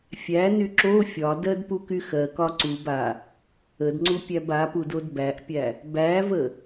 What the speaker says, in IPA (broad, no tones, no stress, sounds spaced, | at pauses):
fʲ æ n y ǁ o fʲ ɒ d ɜ d p u k y x ɜ k ɒ ǀ u b a | ə d ŋ͡ǀ u pʲ æ b a p u d o d b æ ʔ pʲ æ | b æ v ə